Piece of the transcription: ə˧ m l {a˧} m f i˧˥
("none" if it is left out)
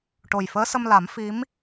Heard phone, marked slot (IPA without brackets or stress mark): a˨˩˦